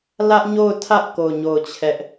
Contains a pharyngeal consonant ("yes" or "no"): no